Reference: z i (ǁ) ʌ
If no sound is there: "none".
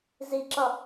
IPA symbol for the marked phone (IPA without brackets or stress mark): ǁ